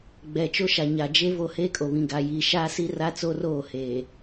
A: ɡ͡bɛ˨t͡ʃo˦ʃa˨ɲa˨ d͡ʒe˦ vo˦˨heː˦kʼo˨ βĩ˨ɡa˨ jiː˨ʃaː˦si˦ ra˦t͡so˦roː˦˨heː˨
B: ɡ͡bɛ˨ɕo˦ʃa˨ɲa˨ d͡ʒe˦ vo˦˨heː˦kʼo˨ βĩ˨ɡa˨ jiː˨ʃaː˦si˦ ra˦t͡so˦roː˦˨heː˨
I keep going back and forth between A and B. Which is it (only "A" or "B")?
A